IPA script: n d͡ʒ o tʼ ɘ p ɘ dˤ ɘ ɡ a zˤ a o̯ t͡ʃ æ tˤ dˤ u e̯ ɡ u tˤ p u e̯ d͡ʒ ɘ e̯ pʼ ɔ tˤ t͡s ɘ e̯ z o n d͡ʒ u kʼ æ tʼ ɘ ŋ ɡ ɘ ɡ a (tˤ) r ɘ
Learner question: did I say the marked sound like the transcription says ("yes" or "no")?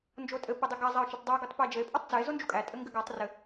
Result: yes